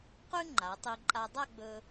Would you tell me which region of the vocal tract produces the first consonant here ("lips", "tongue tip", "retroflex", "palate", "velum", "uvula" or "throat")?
uvula